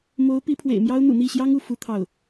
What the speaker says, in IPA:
m o˧˥ ʊ̯ p i˧˥ pʰ w ḛ˨˩ ɪ̯ m j ɑ˥ ʊ̯ n̪ ṵ˨˩ n̪ i˥˩ ɕ j ɑ˥ ŋ u˥˩ f u˥ t̪ʰ ɑ˥˩ ʊ̯

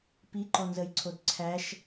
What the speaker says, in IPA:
p i ǃ ɔ n z ə j ǀʰ o d ǀʰ æ ʃ

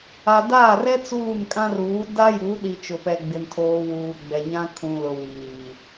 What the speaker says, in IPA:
a˨ d aː˦˨ r ɛ˦ t͡s uː˦˨ n kʼ ã˦ r uː˨˦ d a˦ j u˨˦ ɗ i˨ t͡ʃ ʊ˨ p ɛ˨ ɡ͡b ɪ˨ n tʰ oː˨ w uː˨ ɡ͡b ɛ˨ ɲ ã˦ kʰ ũ˨ l ʊ˨ w iː˨

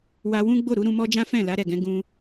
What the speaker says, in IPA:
w a˧ w ũ˦ ɡ͡b o˦˨ ɾ u˨˦ ɾ ũ˧ m ɔ˦ d͡ʒ ã˦ f ɛ̃˦˨ l a˨˦ ɾ ɛ˦˨ ɡ ɛ̃˨˦ ɡ ũ˧

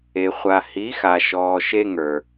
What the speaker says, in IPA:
e˨ χʷ a˨ h i˨˦ x a˨ ʃ ɔː˨ ʃ e˧ ŋ ə˞˨

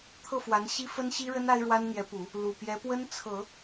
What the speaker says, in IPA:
t̪ʰ ɤ˥˩ f w a˧˥ n ɕ i˥ f ə˥ n ɕ i˥ ɻ ə˥ n a˥ ɪ̯ ɻ w a˥ n n̪ j ɛ˧˥ p u˨˩˦ | l u˨˩ p j ɛ˧˥ p w ə˥ n t͡sʰ ɤ˨˩˦

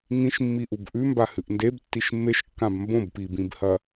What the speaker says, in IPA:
ŋ ĩ ʃ mː i ʔ u b ʔ ʉ m b a h ɨ ʔ n d e b tː i ʃ mː e ʃ kː ã b m b õ b p i b ĩ b h ɐ

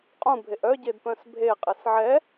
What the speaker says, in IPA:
qʼ ũ bʱ e ʔ œ ɟ e d p œ̃ s bʱ e qʼ e s ʕ ɛ

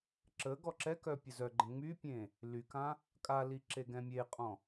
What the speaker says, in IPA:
ǁ ə ɡ ɔ ǁ ɛ k œ pʲ ə z œ ɡ͡ǃ ə̃ ŋ͡m y pʲ ẽ | l y k ã | kʼ a l i ǁ e ɡ ɛ̃ mʲ e qʼ ɔ̃

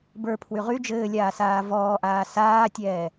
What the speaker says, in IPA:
b ə˞ pʰ w y ʁ y d͡ʒ ɘː lʲ aː s aː v ɔː ʔ aː s aː tʲ ɛː

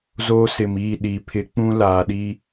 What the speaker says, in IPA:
z oː˦ s ɪ˨ m iː˦˨ ɗ iː˨ pʰ ɪ˨˦ k͡p ũ˦ l aː˨ ɗ i˦

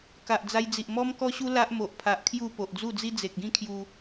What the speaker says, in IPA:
k a˨ ʔ d͡z a˧ j d͡z i˨ ʔ m ɔ˧ m k ɔ˧ ɕ u˧ l a˦ ʔ m o˨ ʔ pʰ a˨ ʔ kʰ j u˥˧ p o˨ ʔ d͡z u˥˧ d͡z i˦ d͡z e˨ k̚ ɡ ĩ˥˧ kʰ j u˧

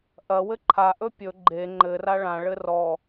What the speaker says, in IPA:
ʔ ɐ w ɘ ǃʰ a ʔ ɵ pʲ ɵ ɡ͡ǃ e ŋ͡ǃ ɘ r a ɭ ã ɭ ɘ r ɔ

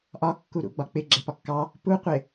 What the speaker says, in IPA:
ʔ ɒ kː u ɾ ṵ ɡ͡b ɒ k͡p ɪ ɡ͡ǁ ɛ p ɒ kː ɑ | p u qʷ ɪ

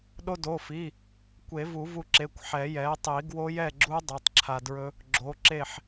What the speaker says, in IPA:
ɗ o˧ d o˩˧˩ f i˩˧˩ | kʷ e˨˩˦ v u˨˩˦ v u˧ ǁ e˩˧˩ kʷ ħ ɛ˨˩˦ j ɛ˩˥ tˤ i˨˩˦ ɡ w o˦˥ j ɛ˥˨ ɡ͡ǁ u˦˥ dˤ i˩˧˩ tˤ ǁʰ a˧ d ɹ ɵ˦˥ | ɡ͡ǁ o˩˥ ǁ e˥˨ ħ

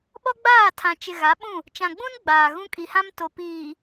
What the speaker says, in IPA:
ɓ ɔ˦ ɡ͡b aː˦˨ tʰ ã˨ t͡ʃ ɪ˨ ɣ a˨˦ ɓ ũ˦˨ | t͡ʃ ã˨ ɡ͡b ũ˦ n ɡ͡b aː˨ ɣ ũ˦ kʼ i˨ h ã˦ m t o˨ p iː˨

